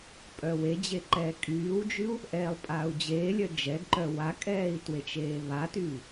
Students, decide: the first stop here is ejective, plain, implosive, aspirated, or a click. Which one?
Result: ejective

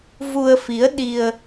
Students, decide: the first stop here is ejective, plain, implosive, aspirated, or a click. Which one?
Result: implosive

